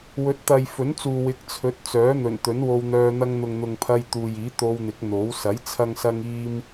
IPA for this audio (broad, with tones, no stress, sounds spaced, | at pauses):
w ɵ˨˥ t̚ t̪ ɐ˨ j f ɵ˨˥ n t͡s uː˨ w ɪ˨˥ k̚ t͡sʰ ɵ˨˥ t̚ t͡s œː˨˥ n̪ ɵ˨˩ n t̪ ɵ˨˥ n w o˧ w n̪ œː˧ n̪ ɐ˧ ŋ n̪ ʊ˨ ŋ n̪ ʊ˨ ŋ pʰ ɐ˧ j t̪ uː˨ j iː˨˥ t̪ o˧ w n̪ ɪ˨˥ k̚ n̪ o˨˥ w s ɐ˨˥ j t͡sʰ ɐ˥ ŋ s ɐ˥ ŋ iː˥ m